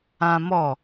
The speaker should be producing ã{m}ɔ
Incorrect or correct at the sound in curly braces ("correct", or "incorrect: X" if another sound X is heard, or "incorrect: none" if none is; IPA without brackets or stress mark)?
correct